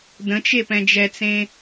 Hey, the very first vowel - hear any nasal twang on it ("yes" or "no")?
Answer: yes